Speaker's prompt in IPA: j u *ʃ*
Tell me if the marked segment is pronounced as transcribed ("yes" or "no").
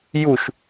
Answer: yes